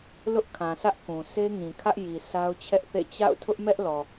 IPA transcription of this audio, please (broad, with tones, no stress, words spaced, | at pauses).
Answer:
lʊ˦ʔkʰã˨sʰä˦ʔ kũ˨se˦ ŋĩ˨kʰä˦ʔji˨ sa˦ʊ̯t͡ɕʰɛ˦ʔθḛ˦˨ t͡ɕa̰˦˨ʊ̯ tʰʊ˦ʔmɛ˦ʔlɔ˨